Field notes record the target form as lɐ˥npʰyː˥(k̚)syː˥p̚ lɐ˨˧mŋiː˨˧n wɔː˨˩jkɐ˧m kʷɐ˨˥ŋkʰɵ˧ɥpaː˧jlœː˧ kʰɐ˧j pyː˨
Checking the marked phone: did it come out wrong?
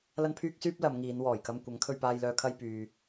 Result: no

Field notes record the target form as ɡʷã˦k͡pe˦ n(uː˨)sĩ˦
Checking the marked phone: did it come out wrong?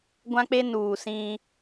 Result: no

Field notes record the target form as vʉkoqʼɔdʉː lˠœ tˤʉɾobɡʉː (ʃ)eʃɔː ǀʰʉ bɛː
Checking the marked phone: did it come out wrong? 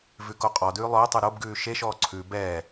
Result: no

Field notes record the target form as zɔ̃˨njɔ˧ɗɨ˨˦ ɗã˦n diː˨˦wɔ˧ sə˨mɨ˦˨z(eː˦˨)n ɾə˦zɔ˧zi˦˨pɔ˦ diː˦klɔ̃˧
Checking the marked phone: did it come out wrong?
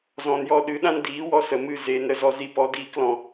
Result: yes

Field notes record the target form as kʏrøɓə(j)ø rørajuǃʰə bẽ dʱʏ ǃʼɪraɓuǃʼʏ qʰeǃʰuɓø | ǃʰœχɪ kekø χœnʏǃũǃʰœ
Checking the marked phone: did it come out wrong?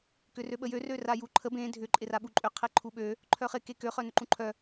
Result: no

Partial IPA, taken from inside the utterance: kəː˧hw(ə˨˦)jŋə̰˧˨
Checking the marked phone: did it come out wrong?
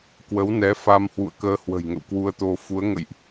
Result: yes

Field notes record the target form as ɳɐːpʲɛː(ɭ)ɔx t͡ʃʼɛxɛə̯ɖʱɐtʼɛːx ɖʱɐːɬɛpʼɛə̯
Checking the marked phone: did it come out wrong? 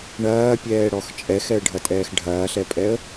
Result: yes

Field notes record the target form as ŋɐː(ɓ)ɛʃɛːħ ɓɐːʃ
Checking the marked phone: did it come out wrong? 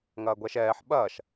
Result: yes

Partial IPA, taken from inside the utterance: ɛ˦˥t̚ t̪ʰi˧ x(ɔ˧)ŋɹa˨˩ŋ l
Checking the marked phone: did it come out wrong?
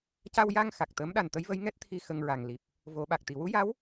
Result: yes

